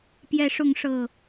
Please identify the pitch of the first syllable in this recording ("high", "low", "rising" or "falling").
rising